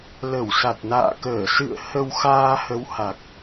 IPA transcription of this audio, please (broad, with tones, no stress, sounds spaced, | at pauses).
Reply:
l ə˧˩ w s a˨˩ t̚ n a̰ː˧˨ k əː˧˩ s ɨ̰˧˨ ə̯ h ə˧ w x aː˧ h ə˨˦ w h a˨˩ k̚